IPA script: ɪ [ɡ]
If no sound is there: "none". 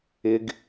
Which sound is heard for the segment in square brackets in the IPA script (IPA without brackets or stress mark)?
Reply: ɡ